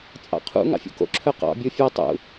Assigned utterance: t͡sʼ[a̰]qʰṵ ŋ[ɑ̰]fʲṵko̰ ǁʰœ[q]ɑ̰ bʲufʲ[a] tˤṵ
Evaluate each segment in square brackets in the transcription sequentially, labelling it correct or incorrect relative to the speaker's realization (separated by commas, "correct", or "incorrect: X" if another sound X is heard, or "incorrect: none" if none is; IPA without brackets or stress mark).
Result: incorrect: ɑ̰, correct, correct, correct